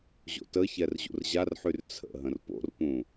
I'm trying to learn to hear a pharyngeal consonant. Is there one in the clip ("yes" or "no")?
yes